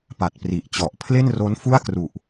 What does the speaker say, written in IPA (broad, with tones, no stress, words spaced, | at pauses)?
pa˨˩t̚pri˨˩ʔt͡ɕɔ˨˩ʔ pʰle˥˩nro˦˥n fu˥˩a̯kru˨˩ʔ